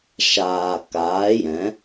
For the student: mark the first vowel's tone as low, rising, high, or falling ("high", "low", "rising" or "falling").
low